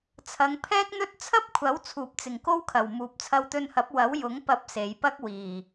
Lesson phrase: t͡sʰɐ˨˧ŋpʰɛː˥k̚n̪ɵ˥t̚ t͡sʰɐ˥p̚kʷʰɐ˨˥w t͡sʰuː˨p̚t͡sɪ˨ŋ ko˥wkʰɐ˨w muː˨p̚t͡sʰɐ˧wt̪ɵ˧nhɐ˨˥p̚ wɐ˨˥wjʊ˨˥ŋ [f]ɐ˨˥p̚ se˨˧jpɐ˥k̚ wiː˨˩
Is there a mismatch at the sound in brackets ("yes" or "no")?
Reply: yes